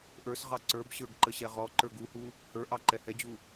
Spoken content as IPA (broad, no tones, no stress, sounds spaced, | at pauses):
ʔ ə˞ s ʁ ɑ ǀ ə˞ b ɕ ə˞ ɡ ǃ ə ɕ ɛ ʁ ɔ ǃ ə˞ ɡ u h u | h ə˞ ʔ ɑ ǃ ɛ h ɛ d͡ʑ u